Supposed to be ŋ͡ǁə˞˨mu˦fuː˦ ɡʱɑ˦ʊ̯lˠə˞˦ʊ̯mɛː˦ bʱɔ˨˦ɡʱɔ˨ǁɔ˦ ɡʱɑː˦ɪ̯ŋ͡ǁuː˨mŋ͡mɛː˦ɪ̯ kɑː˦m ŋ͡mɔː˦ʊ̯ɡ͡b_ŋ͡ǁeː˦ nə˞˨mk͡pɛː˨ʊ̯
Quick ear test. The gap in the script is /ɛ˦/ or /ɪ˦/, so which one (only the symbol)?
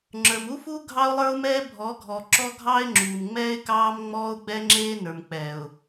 ɛ˦